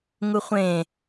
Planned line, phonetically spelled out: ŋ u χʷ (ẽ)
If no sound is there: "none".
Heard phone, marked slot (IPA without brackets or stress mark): ẽ